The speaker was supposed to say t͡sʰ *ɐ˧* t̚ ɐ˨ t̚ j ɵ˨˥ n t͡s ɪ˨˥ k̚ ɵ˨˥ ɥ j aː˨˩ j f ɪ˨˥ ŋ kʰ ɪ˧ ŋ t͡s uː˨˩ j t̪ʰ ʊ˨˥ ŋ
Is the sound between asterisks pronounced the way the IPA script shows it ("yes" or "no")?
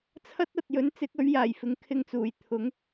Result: no